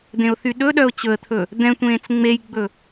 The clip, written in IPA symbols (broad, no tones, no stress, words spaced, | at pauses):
d̪ẽʊ̯θyɗɵɗœʊ̯ t͡ɕɵə̯t̪ʰɵ | d̪ɛ̃tʷẽːt͡s ŋ͡mejɡ͡bɵ